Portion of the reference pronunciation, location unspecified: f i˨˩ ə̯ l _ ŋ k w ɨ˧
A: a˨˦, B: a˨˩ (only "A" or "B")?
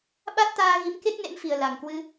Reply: B